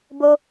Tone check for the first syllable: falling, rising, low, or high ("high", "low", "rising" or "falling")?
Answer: high